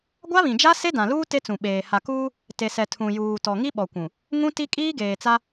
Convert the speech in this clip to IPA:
ɡʷ a˦ β ĩ˨ d͡ʒ a˦ s e˦ d ã˨ l uː˦ t e˦ t͡s ũ˨ ɓ eː˨ h a˨ k uː˦ | t e˨ s ɛ˨ tʰ ũ˨ j uː˨ t ɔ˨ ŋ i˦ ɓ ɔ˨ kʷ ũ˨ | ŋ ũ˦ t i˦ kʼ iː˦ ɡ eː˨ t͡s a˦

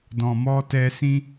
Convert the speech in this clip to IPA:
d ɔ̃˨ m ɔ˧ t ɛ˧ s ĩ˧

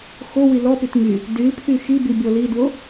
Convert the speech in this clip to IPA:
x o w i l ɔ p y t ŋ y | d y l pʰ y x i b i bʲ ɔ l i d w o

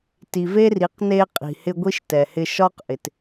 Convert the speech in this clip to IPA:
t i˨ v e˦ r i˨˦ q n e˧ qʼ i̤˨ h ɪ˧ ɡʷ i˦ ʃ t ɛ˨ h ɪ˧ ʃ ɒ˦ q ʔ ɪ˨ t

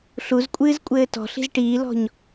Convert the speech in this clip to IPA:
ɬ u z kʷʼ ɨː z kʷʼ ɘː t ɔ̤ ɬ i̤ z ʈ iː l ɔ̤ ɲ

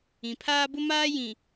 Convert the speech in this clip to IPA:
ĩ˨ pʰ aː˦ b ʊ˦ m aː˦ j ĩ˨

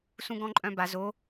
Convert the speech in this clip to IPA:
s ũ ɡ ɔ̃ ǃʼ œ̃ b a z o

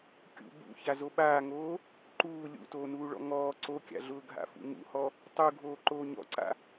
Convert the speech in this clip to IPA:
kʲ ṵ b ṵ ç a z o ɓ aː ŋ oː | ǃ uː lʲ ṵ t oː n uː ɭ ɔ̰ ŋ ɔː ǀ o kʲ a̰ ɮ ʊː ɡʱ a̰ f ṵ ŋ ṵ h ɔ | tˤ u ɡʱ oː ǃ oː ɲ ɔ̰ ǀ a̰

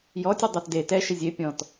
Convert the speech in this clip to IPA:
j ɔ tʲ ɐ dˤ a t d e t ɛ ʃ ɪ zʲ e pʲ ɔ̃ t

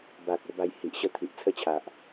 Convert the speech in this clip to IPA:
b a˨ k̚ o˧ b a˧ j h i˨ ʔ ɕ ə˥˧ t̪ʰ i˨ ʔ t͡sʰ ə˥˧ t͡ɕʰ a˨ ʔ

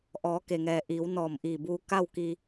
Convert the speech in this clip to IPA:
ʔ ɔː˩˧ k e˩ ŋ ɛː˩ ʔ iː˩˧ w n ɔː˧˩ m ʔ iː˧˩ b uː˧ k a˥˨ w k i˧

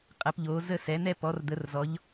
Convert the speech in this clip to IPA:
qʼ ɛ˨˦ p ʎ oː˨˦ z ə˥˧ s ɛ˨˦ n̪ ɛ˥˧ p ɔ˨˦ r d̪ ə˨˦ r z ɔ˨˦ ʎ

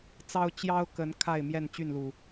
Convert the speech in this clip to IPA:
t͡s ɑ˦ ʊ̯ t͡ɕ j ɑ˦ ʊ̯ k ə˨˦ n kʰ a˥˨ ɪ̯ m j ɛ˥˨ n t͡ɕ y˥˨ n l u˨˩

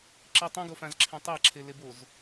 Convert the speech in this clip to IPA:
ǁ i tˤ ĩ ɡ o f ã z ǁʰ ẽ tˤ a ǁʰ e l e b o z

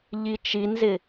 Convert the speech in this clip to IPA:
ʎ i t͡ʃ i n z ɪ

